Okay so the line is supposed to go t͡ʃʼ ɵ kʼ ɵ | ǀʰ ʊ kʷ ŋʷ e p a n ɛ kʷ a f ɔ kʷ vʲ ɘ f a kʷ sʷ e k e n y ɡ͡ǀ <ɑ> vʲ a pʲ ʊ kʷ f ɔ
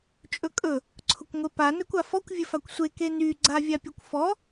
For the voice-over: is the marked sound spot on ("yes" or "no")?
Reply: no